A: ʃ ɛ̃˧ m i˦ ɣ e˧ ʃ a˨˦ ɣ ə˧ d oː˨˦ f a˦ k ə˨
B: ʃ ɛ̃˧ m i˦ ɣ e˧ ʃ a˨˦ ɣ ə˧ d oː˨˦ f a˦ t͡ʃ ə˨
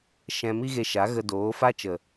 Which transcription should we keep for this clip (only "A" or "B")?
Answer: B